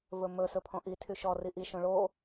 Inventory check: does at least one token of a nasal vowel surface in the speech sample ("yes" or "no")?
yes